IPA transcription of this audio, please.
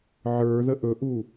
ʕ ə˞ ð ə ʔ ɵ ʔ u

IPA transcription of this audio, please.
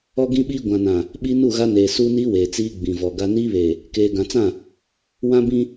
ɔ˦ ɡ ĩ˦ ɓ iː˦ ɡʷ ã˨ n ã˨ | ɓ iː˦ n u˦˨ ɣ a˦ n eː˨ s u˦ n i˦ w eː˨ t͡s iː˦ ɡ͡b ĩ˨ v ɔ˨ ɡ a˦ n iː˦ β eː˨ | k eː˨ ɡ ã˨ t͡s ã˦˨ | w ã˦ b ĩ˦

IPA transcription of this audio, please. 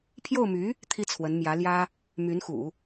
pʰ j o˥˩ ʊ̯ m y˧˥ | t̪ʰ i˥ t͡sʰ w ə˧˥ n m j ä˧˥ l j ä˥ | m y˧˥ n x ṵ˨˩˦

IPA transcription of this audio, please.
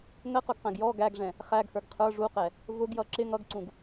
ŋ ə q ʊ ɡ q æ̃ ɡ j ɔ ɡ æ ɡ ʐ ɛ̃ | χ æ ɡ h ə˞ ɡ qʰ ə˞ ʐ u q ɛ | v ʊ ɡ j ʌ ǁ ɪ ŋ ʌ ɡ ǀ ũ ɡ

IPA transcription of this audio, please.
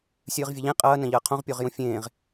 sʲ ɨː ʁ vʲ ɐ ʎ ẽ qʼ ɐː n ɐ̃ ʎ ɐː qʰ õ ʁ pʲ o ʁ j ũ fʲ ẽː ʁ

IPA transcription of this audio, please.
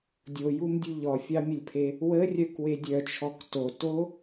dʲ o j u m dʲ u ʎ ɔ fʲ ɑ mʲ ə lʲ pʰ e | w ə rʲ œ k w e dʲ œ t͡ʃʰ ɔ k t o t o

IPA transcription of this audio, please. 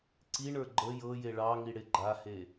ǀ i ɳ ə˞ ɡ͡ǃ ə j ɤ j e ɭ ɑ ŋ i ɽ e ɡ͡ǃ a h e

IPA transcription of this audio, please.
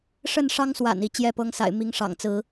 ʂ ə˥˨ n ʂ ɑ˦ ŋ s w a̰˨˩ n i˨˦ t͡ɕ j ɛ˥˨ p ɤ˦ ŋ s a̰˨˩ ɪ̯ m i˨˦ ŋ ʂ ɑ̰˨˩ ŋ t͡s ɹ̩˨˦

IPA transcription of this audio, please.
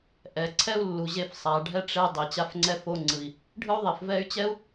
ʔ ɛ˩ ǀʰ ɛ˥ u̯ lː u˩ ʑ e˧ f sˤ a˩ ɖʱ ɛ˥ ʈ͡ʂ e˧ dˤ e˩ t͡ɕ a˧ f ŋ͡ǀ ɛ˧ f o˧ ŋ͡ǀ ɯ˩ i̯ | ɖʱ ɯ˥ u̯ ðˤ i˩ f v ɛ˥ y̯ t͡ɕ ɛ˥ u̯

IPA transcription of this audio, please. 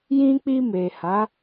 j ĩ˧ k͡p i˧ m e˨ h a˨˦

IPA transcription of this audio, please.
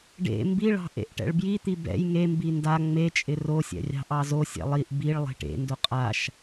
ɖ ḛ m b i ɭ ɑ̤ ʔ ḛ ʔ ʈ ɛ̰ ɭ b j i t̪ i b ɛ̰ j ŋ e m b i n d a ŋ͡m e t͡ʃʼ ɪ r o sʲ ɛ̰ rʲ ɑ̤ ʔ ɑ z o sʲ ɛ̰ lˠ i ʔ b i ɭ lˠ e̤ ʈ ḛ n d o qʼ a ʃ

